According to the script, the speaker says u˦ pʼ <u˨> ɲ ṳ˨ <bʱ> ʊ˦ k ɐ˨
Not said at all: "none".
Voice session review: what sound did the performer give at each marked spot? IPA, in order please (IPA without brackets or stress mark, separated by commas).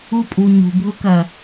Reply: u˨, bʱ